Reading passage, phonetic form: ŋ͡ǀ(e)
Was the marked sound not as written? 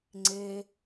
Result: no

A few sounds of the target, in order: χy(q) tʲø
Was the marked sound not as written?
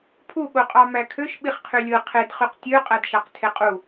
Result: no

